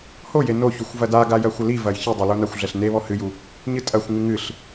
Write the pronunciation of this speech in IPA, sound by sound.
hoje noçuxʷ vɐdaɡa jɐxʷɘlivɐj çɨdˤɘ lonaxʷɮɛɬ neβɔ hɨju | ɲɨtʼɐxʷŋɨ ŋɨɬ

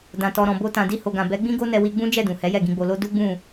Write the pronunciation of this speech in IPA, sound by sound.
dã˨tɔ˨ɾɔ̃˨ bo˧ tã˨di˧ho˨ɡã˨ bɛ˨˦ɡ͡bĩ˦ɡo˦nɛ˧ wi˧ɡ͡bũ˦ d͡ʒɛ˦˨ dũ˨hɛ˨˦jɛ˦˨ɡĩ˧ ɡ͡bo˨lo˧ du˦ɡ͡bũ˦˨

